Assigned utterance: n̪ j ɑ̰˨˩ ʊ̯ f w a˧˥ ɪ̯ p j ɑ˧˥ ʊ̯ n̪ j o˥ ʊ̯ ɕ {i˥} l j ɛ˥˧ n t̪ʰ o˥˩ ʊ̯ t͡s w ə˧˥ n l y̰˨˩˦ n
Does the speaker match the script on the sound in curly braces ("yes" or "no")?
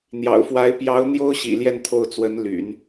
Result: no